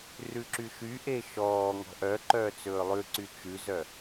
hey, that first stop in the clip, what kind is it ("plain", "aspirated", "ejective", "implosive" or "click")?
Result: click